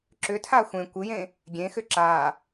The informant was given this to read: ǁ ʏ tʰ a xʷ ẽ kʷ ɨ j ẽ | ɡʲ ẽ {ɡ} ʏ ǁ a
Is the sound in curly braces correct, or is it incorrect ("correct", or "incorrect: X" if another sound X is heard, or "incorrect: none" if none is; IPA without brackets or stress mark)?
incorrect: x